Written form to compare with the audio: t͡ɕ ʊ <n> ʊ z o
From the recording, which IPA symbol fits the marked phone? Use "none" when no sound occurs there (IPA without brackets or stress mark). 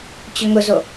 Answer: ŋ